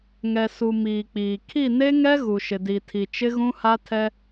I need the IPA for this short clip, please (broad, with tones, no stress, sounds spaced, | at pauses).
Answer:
ŋ ɛ˨ s u˨ m iː˨ k͡p iː˨ kʰ i˦˨ n e˦ ŋ ɛ˦ ɣ u˨ ʃ ɪ˨ d i˨ tʰ i˨ t͡ʃ ɪ˦ ɣ ũ˦ h a˦ tʰ ɛ˦